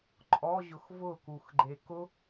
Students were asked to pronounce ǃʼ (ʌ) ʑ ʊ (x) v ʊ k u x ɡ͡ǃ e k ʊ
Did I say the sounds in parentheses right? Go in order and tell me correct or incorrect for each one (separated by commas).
incorrect, correct